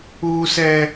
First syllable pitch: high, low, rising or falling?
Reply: high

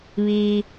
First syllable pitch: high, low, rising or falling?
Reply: low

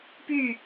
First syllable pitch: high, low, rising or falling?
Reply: falling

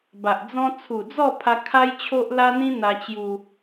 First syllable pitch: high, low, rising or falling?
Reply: low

